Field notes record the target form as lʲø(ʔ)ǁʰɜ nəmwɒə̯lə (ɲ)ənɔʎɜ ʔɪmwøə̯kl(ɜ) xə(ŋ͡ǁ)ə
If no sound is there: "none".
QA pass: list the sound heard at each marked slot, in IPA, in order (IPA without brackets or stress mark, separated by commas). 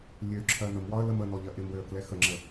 none, m, ɛ, ŋ͡ǁ